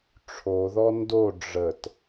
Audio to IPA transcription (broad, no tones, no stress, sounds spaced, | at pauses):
ʈ͡ʂʰ o ð ɔ n d o ɖ͡ʐ ə t